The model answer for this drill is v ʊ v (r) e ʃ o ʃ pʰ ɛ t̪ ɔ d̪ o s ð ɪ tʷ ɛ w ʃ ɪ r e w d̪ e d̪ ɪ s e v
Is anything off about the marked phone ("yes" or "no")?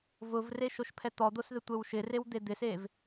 no